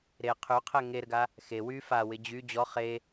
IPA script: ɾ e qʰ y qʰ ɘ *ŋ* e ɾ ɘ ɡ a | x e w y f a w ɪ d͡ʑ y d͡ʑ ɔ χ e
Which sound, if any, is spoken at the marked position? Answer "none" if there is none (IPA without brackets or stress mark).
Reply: ŋ